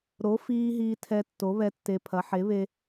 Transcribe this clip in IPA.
ɾ o˩˥ f iː˧ ɦ iː˧ tʰ ɛ˧ tː o˩˥ β ɛ˧ tː e˧ pʰ ɐ˩˥ ħ e˩˥ β e˧

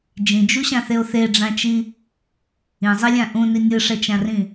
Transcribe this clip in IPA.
d͡ʒ ĩ d͡ʒ u ɕ ã θ e o̯ θ e ɖ͡ʐ ã t͡ʃ i | ĩ zˤ i lʲ ã ʔ ũ n i nʲ ɯ ʂ ɛ t͡ʃ ã r ĩ

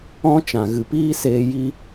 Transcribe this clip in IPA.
ɔ̃˦ t͡ʃ ã˨ ɣ ɨ˨ p iː˦ s eː˧ j i˦

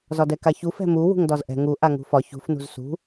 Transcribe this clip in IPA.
z ɒ d ɛ k a ç u f ɛ̤ m u w ṳ ŋ d ɒ z ʔ ɛ̤ ŋ u ʔ a ŋ ṳ f ɒ ç ṳ f n ṳ z s ṳ

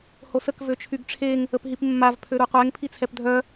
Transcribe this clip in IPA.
h o s ə k v ø t͡ʃʰ y ɡ ʈ͡ʂʰ e ŋ | ə p ɦ i p mː a v pʰ ø ɾ u qʷ ɛ ŋ pʰ i t͡sʰ ɛ p dʱ œ

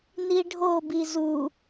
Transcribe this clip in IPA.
n i ɖʱ o b i z u

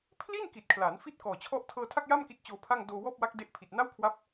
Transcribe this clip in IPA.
pʰ l i˥˩ n k i˨˩ t̚ kʰ l aː˩˦ n f i˥˩ t̚ k ɔː˨˩ t͡ɕʰ ɔ˥˩ ʔ tʰ ɤː˧ tʰ a˥˩ k̚ j a˥˩ m k i˦˥ t̚ t͡ɕ oː˧ pʰ a˥˩ ŋ d oː˧ w ɔː˥˩ p̚ w a˦˥ k̚ d e˦˥ ʔ pʰ i˨˩ t̚ n a˥˩ w kʰ w a˦˥ p̚

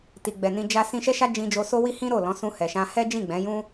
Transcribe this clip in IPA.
t i˨ ɡ͡b ɛ˨ n ĩ˧ d͡ʒ a˦ s ĩ˦ ʃ ɛ˦ ʃ a˦ d͡ʒ ĩ˧ d͡ʒ o˧ s o˧ w i˧ h ĩ˦ ɾ o˦˨ l ɔ̃˨˦ s ũ˧ h ɛ˨ ʃ ã˧ h ɛ˦ d͡ʒ ĩ˦˨ ɡ͡b ɛ̃˨˦ j ũ˦

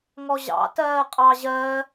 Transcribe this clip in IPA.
ŋ ɔ ʑ ɑ̰ t ɜː qʼ ɑ ʑ ɜ

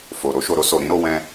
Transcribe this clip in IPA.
f o˨ ɾ o˧ ʃ o˨ ɾ o˧ s o˨ ɾ ĩ˨˦ ɾ o˧ w ɛ̃˧

